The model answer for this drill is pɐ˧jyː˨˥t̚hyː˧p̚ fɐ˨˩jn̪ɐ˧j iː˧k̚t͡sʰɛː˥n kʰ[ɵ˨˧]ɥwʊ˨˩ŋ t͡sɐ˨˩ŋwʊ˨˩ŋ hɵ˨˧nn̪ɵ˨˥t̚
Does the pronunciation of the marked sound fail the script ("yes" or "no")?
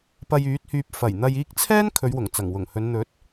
no